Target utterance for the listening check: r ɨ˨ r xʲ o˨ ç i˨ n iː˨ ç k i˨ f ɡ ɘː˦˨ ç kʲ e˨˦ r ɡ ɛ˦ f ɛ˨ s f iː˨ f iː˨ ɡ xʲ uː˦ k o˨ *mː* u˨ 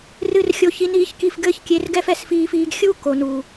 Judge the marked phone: incorrect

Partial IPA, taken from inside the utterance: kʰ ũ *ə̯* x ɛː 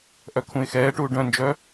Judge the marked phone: incorrect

